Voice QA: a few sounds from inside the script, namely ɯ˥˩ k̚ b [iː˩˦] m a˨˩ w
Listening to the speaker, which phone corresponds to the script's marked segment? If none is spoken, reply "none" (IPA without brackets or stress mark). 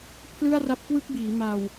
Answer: iː˩˦